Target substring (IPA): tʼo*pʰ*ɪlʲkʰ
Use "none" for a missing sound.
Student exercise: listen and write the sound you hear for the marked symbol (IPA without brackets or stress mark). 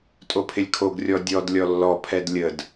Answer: pʰ